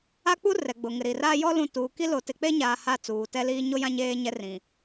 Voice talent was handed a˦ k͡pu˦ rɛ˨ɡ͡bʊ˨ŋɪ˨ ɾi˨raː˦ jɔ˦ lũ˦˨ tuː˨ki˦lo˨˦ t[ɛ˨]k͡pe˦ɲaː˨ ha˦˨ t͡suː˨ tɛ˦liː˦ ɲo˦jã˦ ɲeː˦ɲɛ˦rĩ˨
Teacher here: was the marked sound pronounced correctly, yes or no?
no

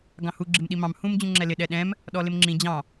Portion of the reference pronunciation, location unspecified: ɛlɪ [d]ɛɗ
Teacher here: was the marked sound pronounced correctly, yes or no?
no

